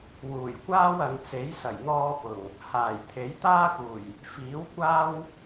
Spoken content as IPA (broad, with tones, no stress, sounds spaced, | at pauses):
w uː˨˩ j kʷ aː˥ w ɐ˨˧ n t͡s e˨˥ j s ɐ˨˩ j n̪ ɔː˧ p ʊ˨˩ ŋ | h aː˨˩ j t̪ʰ e˨˥ j t̪ aː˥ k uː˨˩ j | f iː˨˥ w kʷ aː˥ w